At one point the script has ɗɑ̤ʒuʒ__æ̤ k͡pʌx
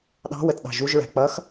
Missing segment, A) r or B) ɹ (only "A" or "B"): B